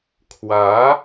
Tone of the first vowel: rising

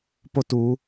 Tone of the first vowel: falling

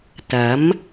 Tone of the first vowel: rising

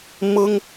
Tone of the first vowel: high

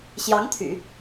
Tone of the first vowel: rising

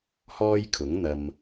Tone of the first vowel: high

